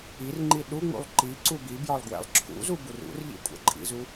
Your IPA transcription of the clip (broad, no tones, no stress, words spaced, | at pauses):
irŋ͡ǃi ɗuŋ͡mṵlˠ ǃiǀu bibjɒlˠ ɡwɛ̰lˠǁʰṵzu burṵrʎḭ kʷʼɛ̰ǃʼḭzu